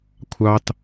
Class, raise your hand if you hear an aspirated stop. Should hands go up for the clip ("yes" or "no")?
yes